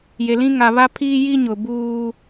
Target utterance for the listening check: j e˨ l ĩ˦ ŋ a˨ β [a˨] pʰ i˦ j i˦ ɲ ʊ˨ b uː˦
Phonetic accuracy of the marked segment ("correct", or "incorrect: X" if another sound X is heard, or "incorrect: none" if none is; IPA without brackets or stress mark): incorrect: a˦